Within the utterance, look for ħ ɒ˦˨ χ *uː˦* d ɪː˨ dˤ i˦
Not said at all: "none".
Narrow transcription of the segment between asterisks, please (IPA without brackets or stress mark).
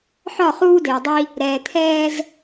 uː˦